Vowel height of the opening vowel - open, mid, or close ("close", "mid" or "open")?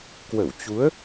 mid